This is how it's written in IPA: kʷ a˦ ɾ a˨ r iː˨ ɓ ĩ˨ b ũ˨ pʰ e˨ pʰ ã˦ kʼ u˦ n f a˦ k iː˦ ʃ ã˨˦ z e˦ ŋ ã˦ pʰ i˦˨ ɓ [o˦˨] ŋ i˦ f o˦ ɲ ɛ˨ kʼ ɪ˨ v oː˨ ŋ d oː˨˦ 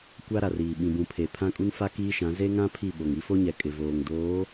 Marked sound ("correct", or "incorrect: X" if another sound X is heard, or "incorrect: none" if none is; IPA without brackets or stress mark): incorrect: o˨